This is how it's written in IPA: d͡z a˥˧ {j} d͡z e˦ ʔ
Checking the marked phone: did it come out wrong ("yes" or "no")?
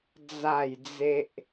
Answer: no